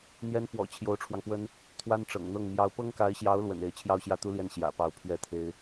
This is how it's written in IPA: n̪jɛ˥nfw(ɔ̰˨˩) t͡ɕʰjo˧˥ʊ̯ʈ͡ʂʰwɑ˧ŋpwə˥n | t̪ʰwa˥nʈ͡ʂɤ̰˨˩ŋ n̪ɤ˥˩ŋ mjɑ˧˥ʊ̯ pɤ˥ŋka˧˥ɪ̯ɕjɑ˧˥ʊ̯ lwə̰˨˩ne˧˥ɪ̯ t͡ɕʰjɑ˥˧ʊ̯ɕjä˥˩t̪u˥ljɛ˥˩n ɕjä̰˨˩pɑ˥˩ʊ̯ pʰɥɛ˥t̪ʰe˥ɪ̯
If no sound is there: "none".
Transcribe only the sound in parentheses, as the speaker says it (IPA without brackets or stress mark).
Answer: ɔ̰˨˩